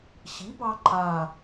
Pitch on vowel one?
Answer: rising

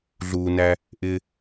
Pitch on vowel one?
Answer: low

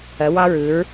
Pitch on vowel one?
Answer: rising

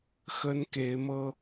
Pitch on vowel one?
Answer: high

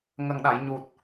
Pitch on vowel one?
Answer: low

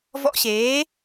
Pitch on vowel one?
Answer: high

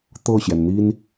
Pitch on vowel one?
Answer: falling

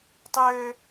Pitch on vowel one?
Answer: high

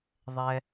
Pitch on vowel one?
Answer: low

